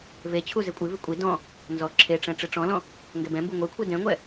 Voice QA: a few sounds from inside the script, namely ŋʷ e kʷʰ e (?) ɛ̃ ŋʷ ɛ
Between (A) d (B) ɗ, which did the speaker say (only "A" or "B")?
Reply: A